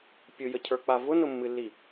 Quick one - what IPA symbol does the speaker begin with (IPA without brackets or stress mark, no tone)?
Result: pʲ